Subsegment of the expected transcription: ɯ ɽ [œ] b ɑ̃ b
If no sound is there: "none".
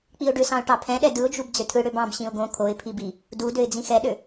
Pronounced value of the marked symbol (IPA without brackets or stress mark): ø